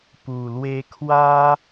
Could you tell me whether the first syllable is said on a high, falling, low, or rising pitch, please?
low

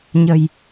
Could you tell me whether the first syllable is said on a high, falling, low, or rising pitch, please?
low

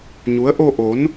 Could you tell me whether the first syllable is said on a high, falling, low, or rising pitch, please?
rising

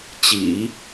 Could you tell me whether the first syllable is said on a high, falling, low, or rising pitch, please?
low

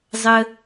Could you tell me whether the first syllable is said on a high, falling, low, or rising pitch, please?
high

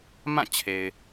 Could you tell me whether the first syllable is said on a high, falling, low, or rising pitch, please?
falling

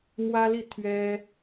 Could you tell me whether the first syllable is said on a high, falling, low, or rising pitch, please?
high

